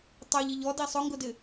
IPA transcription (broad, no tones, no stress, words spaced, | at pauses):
tˤeʎiʎ ɔdi sˤʊŋɡʊdɪ